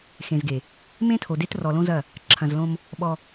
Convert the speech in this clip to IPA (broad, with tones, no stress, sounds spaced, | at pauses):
x ẽ˨ z ɡ e˨ | m ẽ˦ tʰ o˨ d e˦ t r ɔ˨ l õ˦ z ɐ˦˨ | ǁʰ ɐ̃˨ z l õ˦ m | ɓ ɔ˦